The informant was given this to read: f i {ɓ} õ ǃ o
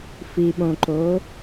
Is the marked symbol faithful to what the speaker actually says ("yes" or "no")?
yes